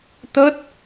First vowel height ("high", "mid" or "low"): mid